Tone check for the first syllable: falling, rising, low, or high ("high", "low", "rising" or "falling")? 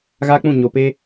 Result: high